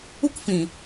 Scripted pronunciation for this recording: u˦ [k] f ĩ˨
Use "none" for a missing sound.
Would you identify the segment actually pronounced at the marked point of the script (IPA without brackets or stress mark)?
k